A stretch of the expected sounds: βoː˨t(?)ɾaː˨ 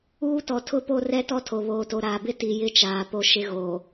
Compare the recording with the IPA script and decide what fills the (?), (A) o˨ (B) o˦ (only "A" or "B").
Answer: A